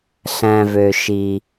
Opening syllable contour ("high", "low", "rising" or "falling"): low